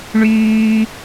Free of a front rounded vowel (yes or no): no